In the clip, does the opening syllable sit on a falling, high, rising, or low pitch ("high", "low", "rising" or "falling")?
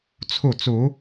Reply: falling